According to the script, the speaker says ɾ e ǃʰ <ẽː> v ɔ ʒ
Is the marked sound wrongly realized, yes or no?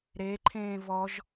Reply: no